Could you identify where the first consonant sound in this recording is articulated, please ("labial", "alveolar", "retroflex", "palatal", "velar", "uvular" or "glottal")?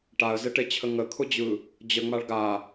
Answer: retroflex